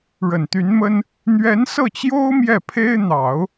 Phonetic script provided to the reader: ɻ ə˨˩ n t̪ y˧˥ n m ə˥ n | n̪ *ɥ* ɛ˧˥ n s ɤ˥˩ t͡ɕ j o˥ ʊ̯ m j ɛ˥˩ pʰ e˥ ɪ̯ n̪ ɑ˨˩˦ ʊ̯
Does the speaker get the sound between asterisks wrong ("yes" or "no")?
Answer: no